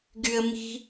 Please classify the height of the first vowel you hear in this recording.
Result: high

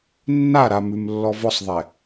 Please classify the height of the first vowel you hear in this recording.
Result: low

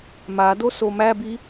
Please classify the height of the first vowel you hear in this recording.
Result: low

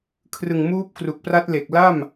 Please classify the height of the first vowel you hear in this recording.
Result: high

